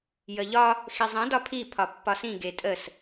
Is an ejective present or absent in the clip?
present